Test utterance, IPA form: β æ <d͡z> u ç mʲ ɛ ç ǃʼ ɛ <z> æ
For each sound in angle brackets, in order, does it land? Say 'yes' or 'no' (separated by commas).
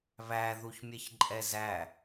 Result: no, yes